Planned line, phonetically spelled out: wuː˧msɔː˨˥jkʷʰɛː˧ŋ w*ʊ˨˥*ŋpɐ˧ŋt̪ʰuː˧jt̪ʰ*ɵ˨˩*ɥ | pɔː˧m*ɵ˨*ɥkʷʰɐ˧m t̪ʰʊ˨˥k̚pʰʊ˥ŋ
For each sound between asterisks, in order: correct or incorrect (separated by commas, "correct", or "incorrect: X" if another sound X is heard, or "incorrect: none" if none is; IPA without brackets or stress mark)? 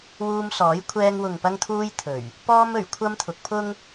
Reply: incorrect: ʊ˨, correct, incorrect: ɵ˨˩